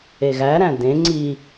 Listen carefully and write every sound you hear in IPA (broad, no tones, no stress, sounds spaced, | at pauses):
e ɣ æ ɾ æ̃ d ẽ ŋ͡ǀ i